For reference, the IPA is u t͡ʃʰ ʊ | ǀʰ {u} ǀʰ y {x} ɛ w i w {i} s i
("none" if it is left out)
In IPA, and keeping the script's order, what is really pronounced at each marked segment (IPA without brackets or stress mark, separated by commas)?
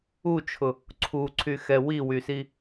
u, x, y